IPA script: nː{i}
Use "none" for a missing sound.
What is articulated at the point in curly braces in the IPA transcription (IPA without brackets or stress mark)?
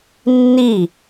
i